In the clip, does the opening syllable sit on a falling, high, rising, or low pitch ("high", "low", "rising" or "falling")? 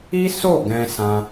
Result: high